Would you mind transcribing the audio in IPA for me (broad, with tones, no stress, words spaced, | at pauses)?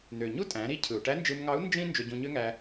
n̪ø˩ ɲu˥tʼæ̃˩˧ɾi˧˥ cʰɯ˩u̯ʈæ˧˥nd͡ʒɯ˧mŋɑ˧˥u̯ nd͡ʒĩ˥ nd͡ʒø˧ɟũ˧ɲø˥ŋæ˧